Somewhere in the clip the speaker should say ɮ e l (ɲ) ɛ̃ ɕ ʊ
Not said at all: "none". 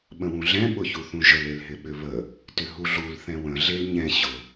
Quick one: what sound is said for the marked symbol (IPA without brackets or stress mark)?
ɲ